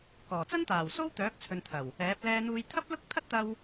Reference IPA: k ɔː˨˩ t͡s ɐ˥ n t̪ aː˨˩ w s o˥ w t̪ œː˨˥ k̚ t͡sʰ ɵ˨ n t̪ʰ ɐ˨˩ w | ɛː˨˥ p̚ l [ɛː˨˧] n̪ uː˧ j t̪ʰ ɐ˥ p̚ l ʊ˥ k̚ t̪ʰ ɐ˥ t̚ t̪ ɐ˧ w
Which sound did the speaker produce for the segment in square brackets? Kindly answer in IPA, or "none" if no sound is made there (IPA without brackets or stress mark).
ɛː˧